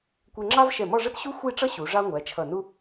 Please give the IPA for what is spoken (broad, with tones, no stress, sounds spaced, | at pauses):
kʷ ɛ˧ ŋ͡ǁ ɑ˥ v ʃ ɛ˧˩ m ɔ˥˧ ʐ ə˥ t ɕ u˥ xʷ i˥˧ ʈ͡ʂ ʌ˥ ɕ u˩˧ ʐ ɑ˥ ŋʷ æ˩˧ t͡ʃʰ ʌ˧˩ n u˥